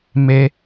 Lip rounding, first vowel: unrounded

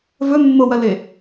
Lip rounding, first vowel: rounded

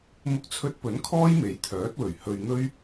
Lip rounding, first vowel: rounded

